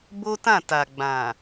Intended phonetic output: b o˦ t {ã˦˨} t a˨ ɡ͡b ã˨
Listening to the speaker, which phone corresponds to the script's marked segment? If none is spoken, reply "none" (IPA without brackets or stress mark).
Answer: ã˦˨